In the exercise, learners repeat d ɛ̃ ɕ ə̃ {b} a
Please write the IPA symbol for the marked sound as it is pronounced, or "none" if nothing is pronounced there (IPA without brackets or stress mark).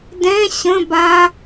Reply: b